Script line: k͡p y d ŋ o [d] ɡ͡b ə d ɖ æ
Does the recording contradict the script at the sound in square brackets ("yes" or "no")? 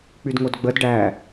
no